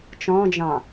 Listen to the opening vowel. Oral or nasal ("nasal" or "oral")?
nasal